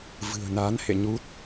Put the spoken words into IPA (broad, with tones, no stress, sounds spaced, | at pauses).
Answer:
v ɨ̤˨˩ ə̯ n a˨˦ n h ḛ˧˨ ɲ u˦˥ t̚